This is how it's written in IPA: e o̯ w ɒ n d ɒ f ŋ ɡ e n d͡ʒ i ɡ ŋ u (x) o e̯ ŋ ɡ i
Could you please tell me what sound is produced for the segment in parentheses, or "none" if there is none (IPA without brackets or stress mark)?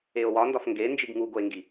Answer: ɡ